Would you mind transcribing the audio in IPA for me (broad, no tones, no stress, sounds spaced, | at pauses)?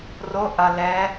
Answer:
r o ʔ ɐ l ɛ